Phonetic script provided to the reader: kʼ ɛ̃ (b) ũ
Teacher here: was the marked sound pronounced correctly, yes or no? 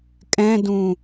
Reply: no